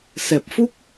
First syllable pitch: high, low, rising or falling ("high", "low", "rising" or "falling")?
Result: low